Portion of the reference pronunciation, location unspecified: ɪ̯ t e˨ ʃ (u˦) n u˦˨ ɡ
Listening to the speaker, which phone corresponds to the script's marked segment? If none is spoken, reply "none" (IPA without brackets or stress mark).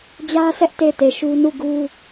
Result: u˦